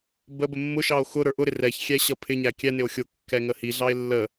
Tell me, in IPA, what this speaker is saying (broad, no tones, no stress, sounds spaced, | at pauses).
b ə b ə mː ʊ ʃ ɑ o̯ x ʊ ɾ ə˞ ʔ ʊ ɾ ɪ r ɛ ç xʲ ɛ ɕ ʌ pʰ ɪ ɲ æ kʲ ɛ n ɪ o̯ xʲ ʊ kː ɛ ŋ ə h i ɮ ɑ e̯ lː ə